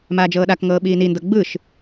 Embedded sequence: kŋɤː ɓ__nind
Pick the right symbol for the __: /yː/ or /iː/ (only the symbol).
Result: iː